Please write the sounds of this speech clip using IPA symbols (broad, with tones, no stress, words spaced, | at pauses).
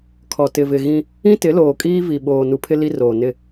kʰɔ˨ tɪ˨vɪ˨ ɣĩ˦ | ĩ˦tɪ˨˦ loː˨kʼiː˦ vi˨ɓoː˨ nu˨pʰɪ˦ li˦roː˨ nɪ˦